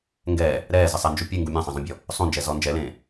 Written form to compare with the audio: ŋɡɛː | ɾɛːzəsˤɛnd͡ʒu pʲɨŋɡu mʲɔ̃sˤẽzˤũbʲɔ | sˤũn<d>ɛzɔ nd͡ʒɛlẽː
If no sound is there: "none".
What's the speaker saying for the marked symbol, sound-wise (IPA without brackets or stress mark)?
d͡ʒ